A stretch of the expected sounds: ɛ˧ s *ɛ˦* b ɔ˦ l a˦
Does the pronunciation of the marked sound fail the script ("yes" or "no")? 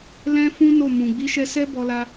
no